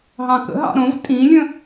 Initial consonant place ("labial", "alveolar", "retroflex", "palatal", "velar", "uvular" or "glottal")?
glottal